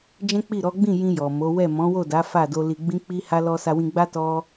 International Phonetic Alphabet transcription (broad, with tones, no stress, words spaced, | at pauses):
d͡ʒɛ̃˦k͡pi˦˨ ɾɔ˨˦ɡ͡bĩ˦˨jĩ˧ jɔ˨mo˨˦ wɛ˦˨ mɔ̃˨˦wo˦˨da˨˦ fa˦˨do˧ li˧ɡ͡bĩ˦k͡pi˦ha˦ lɔ˧sa˧wĩ˧ɡ͡ba˦ tɔ˦